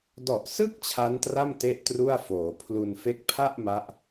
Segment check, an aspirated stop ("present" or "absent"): present